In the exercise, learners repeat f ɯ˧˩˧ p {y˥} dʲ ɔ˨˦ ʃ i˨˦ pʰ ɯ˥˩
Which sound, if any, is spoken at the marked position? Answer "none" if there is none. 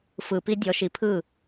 i˥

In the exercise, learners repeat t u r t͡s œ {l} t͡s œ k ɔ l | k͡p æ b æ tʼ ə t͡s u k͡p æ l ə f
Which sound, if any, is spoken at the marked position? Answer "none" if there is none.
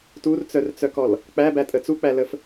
r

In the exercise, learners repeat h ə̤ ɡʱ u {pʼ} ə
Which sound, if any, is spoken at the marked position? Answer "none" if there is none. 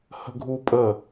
pʼ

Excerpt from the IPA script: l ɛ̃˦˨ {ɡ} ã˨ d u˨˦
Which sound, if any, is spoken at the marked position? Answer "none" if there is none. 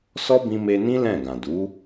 ɡ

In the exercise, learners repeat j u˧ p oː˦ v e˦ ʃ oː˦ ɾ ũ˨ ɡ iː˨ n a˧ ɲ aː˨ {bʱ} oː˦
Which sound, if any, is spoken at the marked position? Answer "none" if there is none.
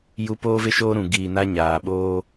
ɓ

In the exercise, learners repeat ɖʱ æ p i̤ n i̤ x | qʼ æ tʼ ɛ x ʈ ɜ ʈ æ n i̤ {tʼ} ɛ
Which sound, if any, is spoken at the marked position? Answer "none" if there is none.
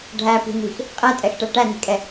kʼ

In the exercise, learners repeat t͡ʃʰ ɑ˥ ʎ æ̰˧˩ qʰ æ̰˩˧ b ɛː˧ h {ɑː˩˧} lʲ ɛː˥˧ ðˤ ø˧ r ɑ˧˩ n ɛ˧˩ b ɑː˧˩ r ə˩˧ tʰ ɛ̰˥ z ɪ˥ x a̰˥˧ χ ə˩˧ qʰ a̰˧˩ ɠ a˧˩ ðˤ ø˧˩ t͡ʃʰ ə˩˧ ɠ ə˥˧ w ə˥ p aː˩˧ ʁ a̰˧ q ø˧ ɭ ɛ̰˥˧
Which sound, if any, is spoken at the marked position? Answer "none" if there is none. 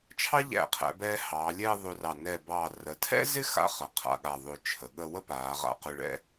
ɑː˩˧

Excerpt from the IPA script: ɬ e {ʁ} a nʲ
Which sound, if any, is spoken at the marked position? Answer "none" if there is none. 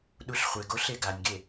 ɡ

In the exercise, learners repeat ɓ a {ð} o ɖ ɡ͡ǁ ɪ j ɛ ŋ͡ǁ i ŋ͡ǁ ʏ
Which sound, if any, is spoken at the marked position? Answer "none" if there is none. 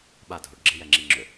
dʱ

